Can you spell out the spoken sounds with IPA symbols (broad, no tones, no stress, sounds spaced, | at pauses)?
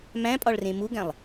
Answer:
m æ̃ pʼ ɒ ɭ r ẽ m u ɡ æ̃ lˠ